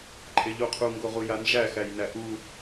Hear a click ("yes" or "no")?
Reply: yes